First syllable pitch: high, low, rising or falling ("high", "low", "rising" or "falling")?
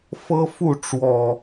high